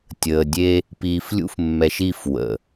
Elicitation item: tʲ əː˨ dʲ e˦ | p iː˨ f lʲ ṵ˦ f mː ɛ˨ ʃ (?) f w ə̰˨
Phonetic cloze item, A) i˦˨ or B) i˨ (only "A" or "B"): A